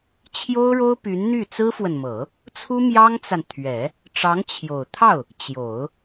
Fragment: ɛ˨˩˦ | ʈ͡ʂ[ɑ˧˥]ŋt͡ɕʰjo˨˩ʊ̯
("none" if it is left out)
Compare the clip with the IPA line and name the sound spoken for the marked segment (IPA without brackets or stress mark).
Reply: ɑ˧˥